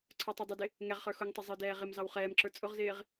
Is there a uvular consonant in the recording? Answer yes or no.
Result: yes